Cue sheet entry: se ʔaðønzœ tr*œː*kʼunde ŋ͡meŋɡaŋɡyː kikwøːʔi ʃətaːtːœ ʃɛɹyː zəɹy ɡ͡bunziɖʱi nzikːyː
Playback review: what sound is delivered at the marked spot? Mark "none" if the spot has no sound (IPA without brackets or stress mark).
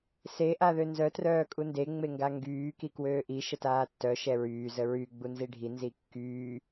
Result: œː